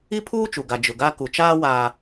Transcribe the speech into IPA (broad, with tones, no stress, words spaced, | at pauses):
i˦pʰuː˦t͡ʃu˨ɡa˨ d͡ʒʊ˨ɡa˦ ku˨t͡ʃaː˦waː˨